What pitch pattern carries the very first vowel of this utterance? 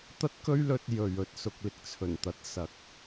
high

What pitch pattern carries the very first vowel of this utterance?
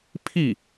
falling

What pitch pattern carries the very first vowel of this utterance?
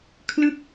falling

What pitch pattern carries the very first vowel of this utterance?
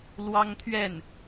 high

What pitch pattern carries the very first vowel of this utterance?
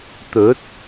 rising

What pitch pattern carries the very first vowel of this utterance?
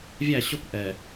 falling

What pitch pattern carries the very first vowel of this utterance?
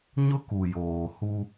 high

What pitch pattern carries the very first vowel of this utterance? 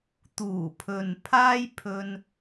low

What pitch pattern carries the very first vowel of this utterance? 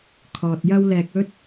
low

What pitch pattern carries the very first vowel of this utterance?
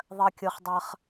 high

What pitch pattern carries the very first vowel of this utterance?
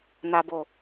low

